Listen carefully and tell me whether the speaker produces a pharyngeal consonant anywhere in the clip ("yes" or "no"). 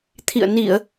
no